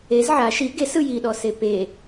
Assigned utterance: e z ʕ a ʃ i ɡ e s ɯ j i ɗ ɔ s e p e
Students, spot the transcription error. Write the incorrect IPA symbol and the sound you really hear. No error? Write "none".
none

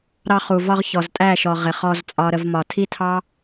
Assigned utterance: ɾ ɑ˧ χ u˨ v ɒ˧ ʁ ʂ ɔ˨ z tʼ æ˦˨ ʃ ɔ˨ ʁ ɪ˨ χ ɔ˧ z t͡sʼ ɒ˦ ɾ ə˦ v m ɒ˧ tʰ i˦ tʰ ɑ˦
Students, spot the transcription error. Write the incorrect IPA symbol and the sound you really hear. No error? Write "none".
ʂ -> ç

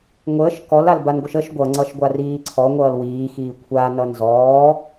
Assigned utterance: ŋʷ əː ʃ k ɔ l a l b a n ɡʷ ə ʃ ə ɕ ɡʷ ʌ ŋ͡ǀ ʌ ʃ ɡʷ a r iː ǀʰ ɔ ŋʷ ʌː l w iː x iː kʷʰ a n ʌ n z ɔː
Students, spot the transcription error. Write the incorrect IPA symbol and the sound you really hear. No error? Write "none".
ɕ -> ʃ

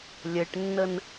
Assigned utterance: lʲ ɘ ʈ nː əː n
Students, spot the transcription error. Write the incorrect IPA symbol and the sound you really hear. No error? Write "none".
əː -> ə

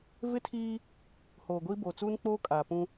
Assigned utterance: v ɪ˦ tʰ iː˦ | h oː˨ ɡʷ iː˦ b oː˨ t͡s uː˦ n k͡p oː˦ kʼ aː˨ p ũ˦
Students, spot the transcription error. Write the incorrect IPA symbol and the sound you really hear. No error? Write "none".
none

